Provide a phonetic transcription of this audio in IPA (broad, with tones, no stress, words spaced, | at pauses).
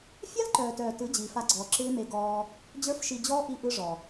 fʲa˦lǃœː˨tœː˨ tɯ˨˦d͡ʑiː˨fa˧ɡ͡ǀɔː˨ ǁɪː˦me˧ɡɔː˧ | d͡ʑə˞˦fʃi˧d͡ʑɔː˦ ʔi˦ʔɯ˦ʐɔ˨